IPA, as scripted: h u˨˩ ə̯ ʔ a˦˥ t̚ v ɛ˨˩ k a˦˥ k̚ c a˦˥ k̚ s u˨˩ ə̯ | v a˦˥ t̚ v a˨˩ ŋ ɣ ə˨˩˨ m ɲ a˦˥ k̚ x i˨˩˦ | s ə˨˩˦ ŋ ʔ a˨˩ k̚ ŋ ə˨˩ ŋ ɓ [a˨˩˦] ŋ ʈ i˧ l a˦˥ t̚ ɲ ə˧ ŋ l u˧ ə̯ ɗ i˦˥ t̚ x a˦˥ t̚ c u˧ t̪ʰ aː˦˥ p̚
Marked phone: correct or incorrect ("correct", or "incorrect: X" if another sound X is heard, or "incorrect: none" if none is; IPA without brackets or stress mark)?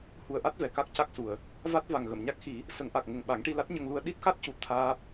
correct